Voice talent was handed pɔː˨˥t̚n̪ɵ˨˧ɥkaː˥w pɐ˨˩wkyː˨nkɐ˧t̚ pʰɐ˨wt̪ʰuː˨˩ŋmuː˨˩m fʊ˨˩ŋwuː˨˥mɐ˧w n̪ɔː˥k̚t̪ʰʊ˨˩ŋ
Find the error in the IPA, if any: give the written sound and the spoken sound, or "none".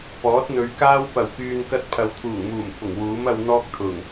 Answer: none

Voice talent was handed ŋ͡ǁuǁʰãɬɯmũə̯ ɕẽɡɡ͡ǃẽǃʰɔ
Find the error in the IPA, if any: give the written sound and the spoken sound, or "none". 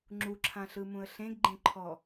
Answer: ɕ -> ɬ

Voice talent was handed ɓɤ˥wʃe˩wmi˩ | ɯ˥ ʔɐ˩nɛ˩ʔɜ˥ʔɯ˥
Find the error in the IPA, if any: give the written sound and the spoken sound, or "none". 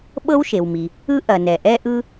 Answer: ɜ˥ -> ɛ˥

